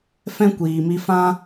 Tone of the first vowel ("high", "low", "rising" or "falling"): high